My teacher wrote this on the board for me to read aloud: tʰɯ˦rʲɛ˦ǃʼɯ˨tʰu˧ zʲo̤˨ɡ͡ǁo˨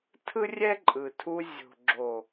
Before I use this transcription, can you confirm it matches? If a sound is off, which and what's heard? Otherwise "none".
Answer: none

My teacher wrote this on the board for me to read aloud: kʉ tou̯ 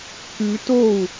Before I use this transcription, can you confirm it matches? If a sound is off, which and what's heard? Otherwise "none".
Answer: none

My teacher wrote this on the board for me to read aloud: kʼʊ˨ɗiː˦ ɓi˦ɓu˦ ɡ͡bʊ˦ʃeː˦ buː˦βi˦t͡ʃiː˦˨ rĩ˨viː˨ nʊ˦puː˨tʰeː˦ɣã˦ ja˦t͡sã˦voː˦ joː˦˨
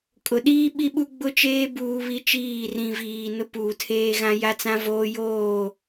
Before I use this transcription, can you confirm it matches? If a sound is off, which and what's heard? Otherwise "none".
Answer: ʃ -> t͡ʃ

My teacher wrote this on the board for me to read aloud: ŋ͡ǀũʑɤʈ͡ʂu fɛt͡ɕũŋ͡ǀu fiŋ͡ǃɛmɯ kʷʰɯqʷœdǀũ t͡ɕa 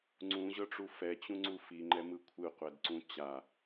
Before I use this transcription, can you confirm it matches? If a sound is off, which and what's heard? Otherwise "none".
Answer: œ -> ɛ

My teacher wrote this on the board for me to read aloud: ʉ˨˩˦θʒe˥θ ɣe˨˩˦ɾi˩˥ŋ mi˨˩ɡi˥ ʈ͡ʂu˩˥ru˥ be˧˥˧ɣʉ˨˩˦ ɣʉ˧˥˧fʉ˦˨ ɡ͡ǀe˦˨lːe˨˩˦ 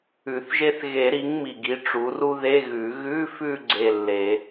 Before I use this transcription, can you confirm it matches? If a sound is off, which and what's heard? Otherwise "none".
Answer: b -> ð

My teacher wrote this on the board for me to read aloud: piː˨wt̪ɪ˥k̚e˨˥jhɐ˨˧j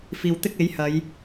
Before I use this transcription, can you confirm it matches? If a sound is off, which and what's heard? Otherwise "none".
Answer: p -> f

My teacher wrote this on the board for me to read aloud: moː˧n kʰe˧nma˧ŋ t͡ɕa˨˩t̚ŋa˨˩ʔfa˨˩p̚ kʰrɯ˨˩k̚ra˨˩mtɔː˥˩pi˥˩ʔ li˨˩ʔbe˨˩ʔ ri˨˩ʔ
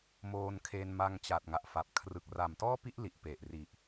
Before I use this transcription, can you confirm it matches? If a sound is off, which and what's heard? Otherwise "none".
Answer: b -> p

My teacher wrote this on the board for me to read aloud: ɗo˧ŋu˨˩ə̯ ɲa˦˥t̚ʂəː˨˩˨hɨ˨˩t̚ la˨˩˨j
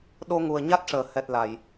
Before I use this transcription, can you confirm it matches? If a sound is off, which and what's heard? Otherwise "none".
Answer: ɨ˨˩ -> ɛ˨˩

